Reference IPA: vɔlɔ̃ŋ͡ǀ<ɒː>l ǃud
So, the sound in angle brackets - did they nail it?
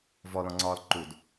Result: yes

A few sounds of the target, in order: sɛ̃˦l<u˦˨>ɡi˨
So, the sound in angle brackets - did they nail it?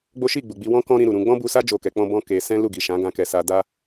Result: yes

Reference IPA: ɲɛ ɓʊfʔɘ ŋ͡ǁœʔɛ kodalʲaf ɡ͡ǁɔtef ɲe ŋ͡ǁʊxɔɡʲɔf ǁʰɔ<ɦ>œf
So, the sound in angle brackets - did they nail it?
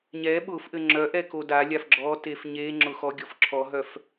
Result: yes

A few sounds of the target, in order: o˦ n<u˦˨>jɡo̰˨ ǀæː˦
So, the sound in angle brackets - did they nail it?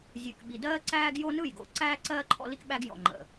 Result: no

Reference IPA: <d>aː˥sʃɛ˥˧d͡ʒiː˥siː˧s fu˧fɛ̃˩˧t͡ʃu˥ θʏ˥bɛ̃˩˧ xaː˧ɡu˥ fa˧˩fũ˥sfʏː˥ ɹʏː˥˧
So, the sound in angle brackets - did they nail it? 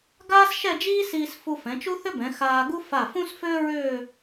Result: no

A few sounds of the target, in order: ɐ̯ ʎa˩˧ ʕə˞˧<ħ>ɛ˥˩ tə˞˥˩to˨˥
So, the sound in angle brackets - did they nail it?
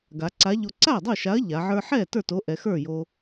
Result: yes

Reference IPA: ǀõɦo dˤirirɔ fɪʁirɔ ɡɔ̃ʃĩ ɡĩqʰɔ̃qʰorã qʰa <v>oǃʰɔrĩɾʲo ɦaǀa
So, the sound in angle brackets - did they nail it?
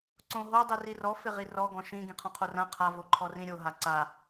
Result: yes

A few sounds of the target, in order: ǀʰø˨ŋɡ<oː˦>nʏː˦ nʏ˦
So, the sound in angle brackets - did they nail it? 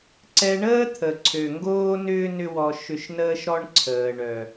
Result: yes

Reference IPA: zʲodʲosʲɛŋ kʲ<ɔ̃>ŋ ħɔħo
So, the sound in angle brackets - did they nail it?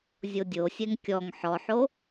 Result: no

